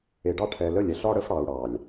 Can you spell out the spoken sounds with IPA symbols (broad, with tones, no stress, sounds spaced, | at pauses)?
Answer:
e˨ ɖ ɑ˦ ʈʰ ɛ˨ l ə˦˨ lʲ ɛ˨ ɬ ɒ˦ ɽ ə˦ f ɽ ɑ˨ u̯ ɽ ɑ˨ lʲ